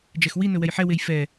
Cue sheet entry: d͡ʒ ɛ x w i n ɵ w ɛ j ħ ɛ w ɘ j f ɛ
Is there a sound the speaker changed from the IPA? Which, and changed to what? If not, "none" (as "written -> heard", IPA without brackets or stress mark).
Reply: ɘ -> e